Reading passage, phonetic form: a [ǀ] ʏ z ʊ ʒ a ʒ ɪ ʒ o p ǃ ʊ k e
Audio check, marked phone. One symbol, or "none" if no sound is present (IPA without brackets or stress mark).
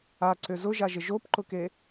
ǀ